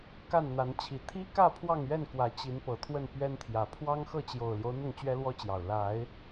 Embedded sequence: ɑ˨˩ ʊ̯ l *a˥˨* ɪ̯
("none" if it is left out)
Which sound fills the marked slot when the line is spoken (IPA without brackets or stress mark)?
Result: a˨˦